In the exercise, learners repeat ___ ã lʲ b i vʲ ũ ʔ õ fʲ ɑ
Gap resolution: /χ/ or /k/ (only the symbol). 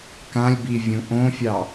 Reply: k